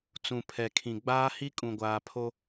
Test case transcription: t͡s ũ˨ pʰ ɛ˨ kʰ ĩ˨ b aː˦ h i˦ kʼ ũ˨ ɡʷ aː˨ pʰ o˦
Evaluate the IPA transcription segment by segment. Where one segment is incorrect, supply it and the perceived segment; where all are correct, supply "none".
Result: b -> ɡ͡b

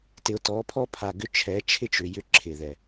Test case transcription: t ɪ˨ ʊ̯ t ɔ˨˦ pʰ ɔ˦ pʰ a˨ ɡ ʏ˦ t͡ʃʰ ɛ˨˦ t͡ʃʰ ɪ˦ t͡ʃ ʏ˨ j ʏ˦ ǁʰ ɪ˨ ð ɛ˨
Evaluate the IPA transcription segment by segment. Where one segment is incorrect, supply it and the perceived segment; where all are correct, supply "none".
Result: none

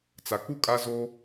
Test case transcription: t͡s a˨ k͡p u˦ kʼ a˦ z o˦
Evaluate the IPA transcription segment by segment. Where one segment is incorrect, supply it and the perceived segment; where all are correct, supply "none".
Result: none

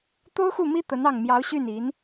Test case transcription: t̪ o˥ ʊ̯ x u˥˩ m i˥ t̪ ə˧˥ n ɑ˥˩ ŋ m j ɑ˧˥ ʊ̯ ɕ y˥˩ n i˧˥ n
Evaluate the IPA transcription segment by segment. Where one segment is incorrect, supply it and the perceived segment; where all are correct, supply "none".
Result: none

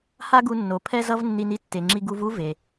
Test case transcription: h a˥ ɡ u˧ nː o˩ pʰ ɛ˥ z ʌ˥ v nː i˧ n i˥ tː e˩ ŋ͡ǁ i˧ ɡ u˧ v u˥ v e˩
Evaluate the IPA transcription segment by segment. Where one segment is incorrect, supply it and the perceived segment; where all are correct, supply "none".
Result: none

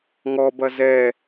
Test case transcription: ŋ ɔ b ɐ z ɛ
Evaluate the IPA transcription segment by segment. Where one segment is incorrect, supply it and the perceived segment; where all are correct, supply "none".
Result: none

